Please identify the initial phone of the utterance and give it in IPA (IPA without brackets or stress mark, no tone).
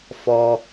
f